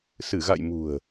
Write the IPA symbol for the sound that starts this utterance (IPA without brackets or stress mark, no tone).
s